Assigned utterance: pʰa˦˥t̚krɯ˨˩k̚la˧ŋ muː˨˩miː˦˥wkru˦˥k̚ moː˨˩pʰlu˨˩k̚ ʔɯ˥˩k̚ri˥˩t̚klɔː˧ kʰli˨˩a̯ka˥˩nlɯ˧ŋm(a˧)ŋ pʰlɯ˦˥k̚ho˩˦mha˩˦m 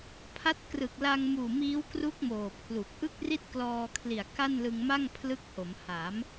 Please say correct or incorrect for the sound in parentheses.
incorrect